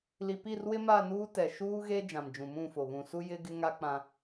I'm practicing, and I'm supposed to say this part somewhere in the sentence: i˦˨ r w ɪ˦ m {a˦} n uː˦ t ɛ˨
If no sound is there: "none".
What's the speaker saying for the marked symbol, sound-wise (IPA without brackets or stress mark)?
a˦˨